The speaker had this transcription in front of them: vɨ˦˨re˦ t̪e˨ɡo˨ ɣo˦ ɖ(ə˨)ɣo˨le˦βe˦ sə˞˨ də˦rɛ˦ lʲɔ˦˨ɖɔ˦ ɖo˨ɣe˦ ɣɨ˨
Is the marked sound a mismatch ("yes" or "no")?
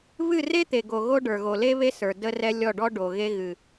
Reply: yes